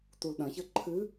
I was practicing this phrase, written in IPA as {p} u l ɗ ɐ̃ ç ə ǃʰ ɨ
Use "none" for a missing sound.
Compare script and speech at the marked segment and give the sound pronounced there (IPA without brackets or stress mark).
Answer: t